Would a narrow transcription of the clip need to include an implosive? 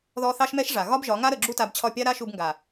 no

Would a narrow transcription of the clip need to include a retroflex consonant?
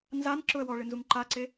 yes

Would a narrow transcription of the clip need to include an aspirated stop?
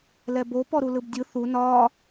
no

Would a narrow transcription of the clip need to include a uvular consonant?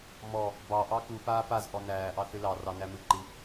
no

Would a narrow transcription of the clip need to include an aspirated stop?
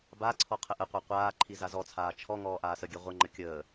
yes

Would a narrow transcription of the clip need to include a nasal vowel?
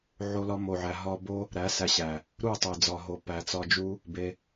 no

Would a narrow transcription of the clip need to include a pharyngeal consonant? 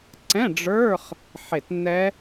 yes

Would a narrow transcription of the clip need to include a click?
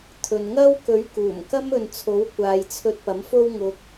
no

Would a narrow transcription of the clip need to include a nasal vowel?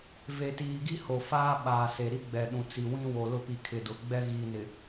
yes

